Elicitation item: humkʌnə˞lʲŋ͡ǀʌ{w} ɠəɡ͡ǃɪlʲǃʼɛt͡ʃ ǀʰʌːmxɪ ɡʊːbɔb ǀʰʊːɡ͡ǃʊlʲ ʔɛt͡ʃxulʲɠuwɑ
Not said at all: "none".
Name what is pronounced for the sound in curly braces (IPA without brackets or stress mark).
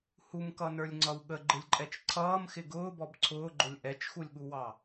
w